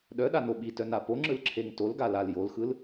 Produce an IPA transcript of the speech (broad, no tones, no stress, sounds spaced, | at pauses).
ɗ œ ɗ a n o ɓ i t œ n a p o ŋ͡ǁ ɯ l ǁʰ e ŋ t o l ɡ a l a l j o l x ɯ l